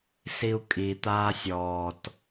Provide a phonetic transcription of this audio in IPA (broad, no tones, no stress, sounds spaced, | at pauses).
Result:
s i u̯ kʼ i t̪ aː sʲ ɔː t